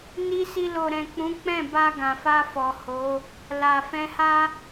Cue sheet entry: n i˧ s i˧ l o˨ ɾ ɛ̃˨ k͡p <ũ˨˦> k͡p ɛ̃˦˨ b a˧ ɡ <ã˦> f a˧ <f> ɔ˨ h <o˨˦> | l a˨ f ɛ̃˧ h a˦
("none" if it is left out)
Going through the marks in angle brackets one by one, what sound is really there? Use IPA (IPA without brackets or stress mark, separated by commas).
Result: ũ˨˦, ã˨, f, o˨˦